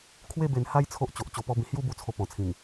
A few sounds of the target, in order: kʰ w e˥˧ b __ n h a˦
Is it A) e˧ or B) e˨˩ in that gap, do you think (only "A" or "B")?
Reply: A